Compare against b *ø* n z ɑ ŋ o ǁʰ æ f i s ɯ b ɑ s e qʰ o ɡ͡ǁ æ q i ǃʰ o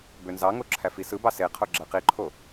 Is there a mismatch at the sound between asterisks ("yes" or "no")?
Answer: no